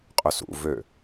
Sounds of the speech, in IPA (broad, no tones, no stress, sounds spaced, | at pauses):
qʼ ɵ s ṵ v ø